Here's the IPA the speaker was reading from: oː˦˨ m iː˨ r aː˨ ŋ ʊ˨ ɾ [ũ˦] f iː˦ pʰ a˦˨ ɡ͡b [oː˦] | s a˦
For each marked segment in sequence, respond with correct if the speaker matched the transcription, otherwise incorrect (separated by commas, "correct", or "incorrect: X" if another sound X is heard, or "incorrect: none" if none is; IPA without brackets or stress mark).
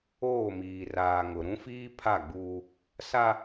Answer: correct, incorrect: uː˦